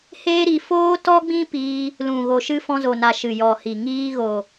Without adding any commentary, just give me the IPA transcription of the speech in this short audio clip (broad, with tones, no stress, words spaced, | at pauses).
heː˦ɾi˧ foː˦ tɔ˦ɡ͡bĩ˦ piː˧ | lũ˨ ɣo˨ʃɨ˧ fɔ̃˧zo˨na˨ ʃɨ˨jɔ˨hi˨ ŋiː˧ ɣo˨